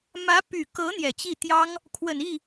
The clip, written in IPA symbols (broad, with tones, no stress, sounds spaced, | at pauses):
m ä˧˥ p y˨˩ k ɤ˧˥ n̪ j ɛ˨˩ t͡ɕ i˥˩ t̪ j ɑ˥ ŋ | kʰ w ə˨˩ n i˥˩